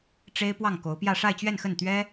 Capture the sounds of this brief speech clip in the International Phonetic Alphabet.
ʈ͡ʂe˥ɪ̯ pwɑ˥˩ŋko˧˥ʊ̯pjä˥˧ ʂa˥˧ɪ̯t͡ɕɥɛ˥˧nxə˥˩n t̪ɥɛ˥

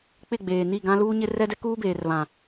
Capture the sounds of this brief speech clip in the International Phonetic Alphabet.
k͡pɪ˦˨ɡ͡beː˨ni˦˨ ɡã˦luː˦ɲɪ˦ rɛ˦dɛ˦ kuː˦beː˨rβã˨

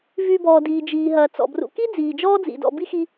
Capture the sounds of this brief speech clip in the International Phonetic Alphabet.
vyː˨bɔː˩diː˩ d͡ʒiː˩ɦɐː˩ t͡sɔ̰˩brṵ˨ki˥ d͡ziː˩d͡ʒɔː˥d͡zḭ˩dɔ̰˨ bi˥xi˦

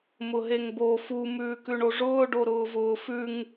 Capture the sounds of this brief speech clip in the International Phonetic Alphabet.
mʊɦeŋbo fu mʉːkʉɳoʐʊː ɖoɾʊːvʊːfʉŋ

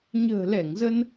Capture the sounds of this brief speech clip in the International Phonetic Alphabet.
ɲə̤ː˨˩lɛ˧˩ŋzə˧n

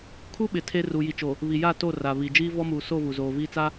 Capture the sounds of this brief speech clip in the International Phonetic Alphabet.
kʰu˦ɓɪ˨ tʰe˦ ruː˨ji˨t͡ʃo˨ | βi˨ ja˦˨to˦˨ ra˨βi˨ d͡ʒiː˦vɔ˦muː˨so˦˨ vu˨zoː˨viː˦ t͡sa˦

